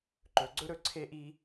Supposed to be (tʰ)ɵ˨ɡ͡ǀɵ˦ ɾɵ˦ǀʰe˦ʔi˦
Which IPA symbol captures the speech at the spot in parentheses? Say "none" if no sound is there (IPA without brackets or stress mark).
ǃ